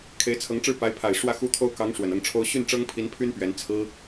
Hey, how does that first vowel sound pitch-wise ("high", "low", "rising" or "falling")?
rising